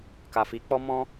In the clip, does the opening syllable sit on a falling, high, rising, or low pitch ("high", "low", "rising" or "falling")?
low